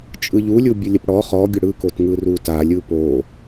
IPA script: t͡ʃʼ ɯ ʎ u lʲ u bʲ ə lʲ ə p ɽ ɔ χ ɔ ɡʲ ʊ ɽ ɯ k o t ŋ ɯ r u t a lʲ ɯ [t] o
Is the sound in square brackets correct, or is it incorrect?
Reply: incorrect